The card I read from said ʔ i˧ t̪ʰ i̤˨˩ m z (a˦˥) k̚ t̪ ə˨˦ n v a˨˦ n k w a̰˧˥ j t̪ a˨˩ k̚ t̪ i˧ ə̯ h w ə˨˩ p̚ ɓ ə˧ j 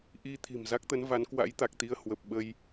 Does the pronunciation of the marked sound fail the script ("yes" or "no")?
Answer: no